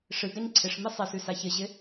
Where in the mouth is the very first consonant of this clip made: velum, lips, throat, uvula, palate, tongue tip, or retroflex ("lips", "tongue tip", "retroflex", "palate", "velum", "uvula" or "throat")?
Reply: retroflex